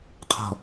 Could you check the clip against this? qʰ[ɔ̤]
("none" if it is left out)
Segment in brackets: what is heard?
ɔ̤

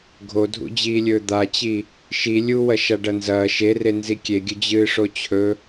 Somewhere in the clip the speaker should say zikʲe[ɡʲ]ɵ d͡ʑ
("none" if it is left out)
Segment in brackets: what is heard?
ɡʲ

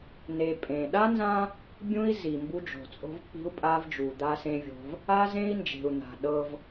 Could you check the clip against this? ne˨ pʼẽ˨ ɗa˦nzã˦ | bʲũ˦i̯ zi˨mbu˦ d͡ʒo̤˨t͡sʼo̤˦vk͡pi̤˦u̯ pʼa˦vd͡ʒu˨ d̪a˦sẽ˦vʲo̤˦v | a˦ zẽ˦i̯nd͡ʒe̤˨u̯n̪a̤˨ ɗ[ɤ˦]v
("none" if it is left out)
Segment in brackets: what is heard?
ɤ˦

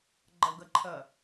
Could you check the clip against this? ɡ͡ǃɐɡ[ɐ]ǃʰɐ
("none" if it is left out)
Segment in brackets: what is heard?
ɐ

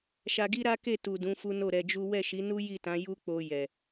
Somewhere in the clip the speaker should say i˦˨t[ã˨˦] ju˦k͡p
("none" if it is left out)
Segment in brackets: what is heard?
ã˨˦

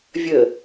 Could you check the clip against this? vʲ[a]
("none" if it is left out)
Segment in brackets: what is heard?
ə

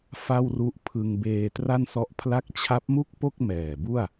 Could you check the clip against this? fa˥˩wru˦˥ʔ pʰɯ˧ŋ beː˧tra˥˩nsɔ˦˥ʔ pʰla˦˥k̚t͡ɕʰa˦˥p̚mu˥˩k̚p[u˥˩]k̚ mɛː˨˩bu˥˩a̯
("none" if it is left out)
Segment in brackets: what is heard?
o˥˩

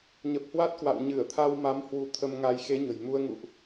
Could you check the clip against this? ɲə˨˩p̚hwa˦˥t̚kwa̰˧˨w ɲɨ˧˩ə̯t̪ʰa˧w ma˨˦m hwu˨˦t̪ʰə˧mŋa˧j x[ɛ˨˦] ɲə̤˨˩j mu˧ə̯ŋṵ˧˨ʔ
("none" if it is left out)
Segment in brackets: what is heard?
e˨˦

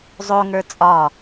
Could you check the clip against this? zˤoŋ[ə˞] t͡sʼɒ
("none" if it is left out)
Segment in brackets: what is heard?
ə˞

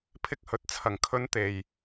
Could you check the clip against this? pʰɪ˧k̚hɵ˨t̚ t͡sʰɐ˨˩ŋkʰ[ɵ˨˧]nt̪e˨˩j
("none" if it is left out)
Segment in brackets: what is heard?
ɵ˨˧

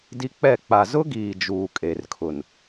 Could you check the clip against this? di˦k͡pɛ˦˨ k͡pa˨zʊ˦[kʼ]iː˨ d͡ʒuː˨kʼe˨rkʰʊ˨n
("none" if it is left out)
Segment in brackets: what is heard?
ɡ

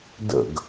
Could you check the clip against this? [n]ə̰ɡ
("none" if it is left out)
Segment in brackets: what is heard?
d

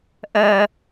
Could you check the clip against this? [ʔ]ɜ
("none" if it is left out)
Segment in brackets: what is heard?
ʔ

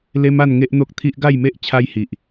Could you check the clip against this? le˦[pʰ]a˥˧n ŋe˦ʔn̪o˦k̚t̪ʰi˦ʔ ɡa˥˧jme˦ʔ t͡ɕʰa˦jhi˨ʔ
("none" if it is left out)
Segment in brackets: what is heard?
m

